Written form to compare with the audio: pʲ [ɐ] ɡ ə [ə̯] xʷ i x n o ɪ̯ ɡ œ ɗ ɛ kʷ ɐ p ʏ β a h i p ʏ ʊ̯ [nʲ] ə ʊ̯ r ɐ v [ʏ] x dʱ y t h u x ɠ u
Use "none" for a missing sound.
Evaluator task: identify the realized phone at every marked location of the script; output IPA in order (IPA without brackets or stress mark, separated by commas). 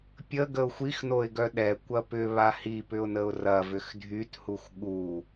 ə, ʊ̯, n, ʏ